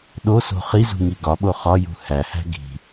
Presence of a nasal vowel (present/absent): absent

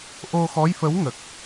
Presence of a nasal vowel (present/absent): absent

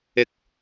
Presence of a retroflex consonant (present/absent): absent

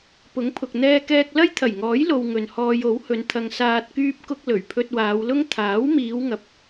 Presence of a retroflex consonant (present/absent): absent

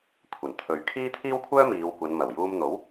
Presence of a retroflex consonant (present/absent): absent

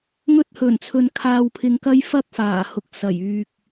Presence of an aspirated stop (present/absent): present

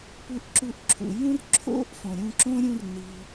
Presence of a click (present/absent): present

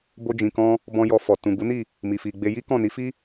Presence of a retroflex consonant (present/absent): absent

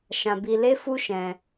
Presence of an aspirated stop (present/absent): absent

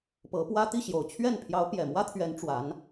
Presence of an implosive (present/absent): absent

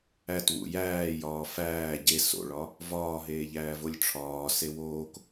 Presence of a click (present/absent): absent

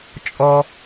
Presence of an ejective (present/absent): present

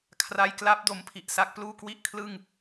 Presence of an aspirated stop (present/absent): present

